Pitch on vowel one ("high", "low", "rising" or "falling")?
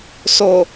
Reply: low